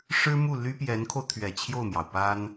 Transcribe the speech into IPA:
ʂ ɻ̩˥ m u˥˩ l y˥ p j ɛ˧˥ n kʰ o˧ ʊ̯ t̪ʰ ɥ ɛ˨˩ t͡ɕʰ j o˥˩ ʊ̯ m j ɑ˩ ʊ̯ p a˥ n

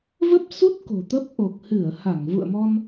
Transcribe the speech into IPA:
v ə˦˥ p̚ s u˦˥ t̚ k o̤˨˩ t̪ ə˦˥ p̚ ʔ o˨˩ k̚ h ɨ˧˩ ə̯ h a˧˩ ŋ v ṵ˧˨ ə̯ m ɔ˧ n

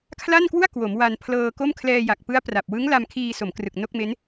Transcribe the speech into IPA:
kʰ l a˥˩ n k w u˥˩ a̯ k w o˩˦ m w a˧ n pʰ l ɤː˧ k o˥˩ m kʰ l ɛː˧ j a˨˩ k̚ p ɯ˦˥ a̯ p r a˨˩ p̚ w ɯ˦˥ ŋ l a˧ m kʰ iː˧ s o˩˦ m k r ɯ˨˩ k̚ n o˥˩ k̚ m e˦˥ n

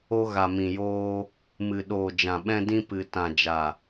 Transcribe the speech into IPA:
o˧ ɣ a˨ m ĩ˨ j oː˧ | m ɨ˨ ɗ oː˨ d͡ʒ ã˨ ɓ ɛ̃˧ d ĩ˧ p ɨ˨ t ã˨ d͡ʒ a˨

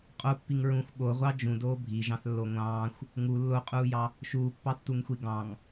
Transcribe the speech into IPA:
qʼ o pː i ŋ ɹ ũ xʷ ɓ o ʁʷ ɑ d͡ʒ ũ d oː bʱ i ʒ ɑ̃ θ lː o ŋʷ ɑ̃ː xʷ | ŋ u lː o qʼ uː j ɑ | ʃ uː pː ɑ tː u ŋ xʷ i ɡ ɑ̃ ŋ

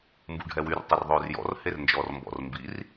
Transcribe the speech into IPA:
m b u ɖʱ ɛ w y r tˤ ɛ r ðˤ øː r j ɔ̰ r h e r n d͡ʒ ɔː r m b ɔ̰ r m b i r

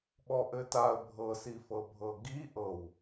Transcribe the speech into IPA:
ɓ ɔ ʔ ɘ t a ə̯ bʱ ɤ s i f ɤ bʱ ɤ ɡ i ʔ ɤ w

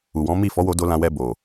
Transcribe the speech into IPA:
u˨ w ɔ̃˨˦ m i˦˨ f ɔ˨˦ w o˧ d o˧ l ã˧ w ɛ˧ b o˨

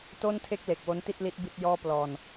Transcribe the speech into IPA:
t o˥˩ n tʰ e˥˩ k̚ l e˨˩ k̚ w o˦˥ n t i˥˩ t̚ l i˦˥ t̚ b i˥˩ t̚ j ɔː˥˩ p l ɔː˧ n

